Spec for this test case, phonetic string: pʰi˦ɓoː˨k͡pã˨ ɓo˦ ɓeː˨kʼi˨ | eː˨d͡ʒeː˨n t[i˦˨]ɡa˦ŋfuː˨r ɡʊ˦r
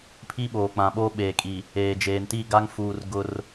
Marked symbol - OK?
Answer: yes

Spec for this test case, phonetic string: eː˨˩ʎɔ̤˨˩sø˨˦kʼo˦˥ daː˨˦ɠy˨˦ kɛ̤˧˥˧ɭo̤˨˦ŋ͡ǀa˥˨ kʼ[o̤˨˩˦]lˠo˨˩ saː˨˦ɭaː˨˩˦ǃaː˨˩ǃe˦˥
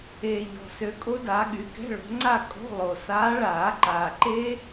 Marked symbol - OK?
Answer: no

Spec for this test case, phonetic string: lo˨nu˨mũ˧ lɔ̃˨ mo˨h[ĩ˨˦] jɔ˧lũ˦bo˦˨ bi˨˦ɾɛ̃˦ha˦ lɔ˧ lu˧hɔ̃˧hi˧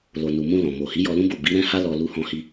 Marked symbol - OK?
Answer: no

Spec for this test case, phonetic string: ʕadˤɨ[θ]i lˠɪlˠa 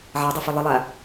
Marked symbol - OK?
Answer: no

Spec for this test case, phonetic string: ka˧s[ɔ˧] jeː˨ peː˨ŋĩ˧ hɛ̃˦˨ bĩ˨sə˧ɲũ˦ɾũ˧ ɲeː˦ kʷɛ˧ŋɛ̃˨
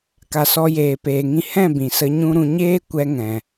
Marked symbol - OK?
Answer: yes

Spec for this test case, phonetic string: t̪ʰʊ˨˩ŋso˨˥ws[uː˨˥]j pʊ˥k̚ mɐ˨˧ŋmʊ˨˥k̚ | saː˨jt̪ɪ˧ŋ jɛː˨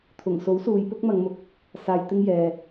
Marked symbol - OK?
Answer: no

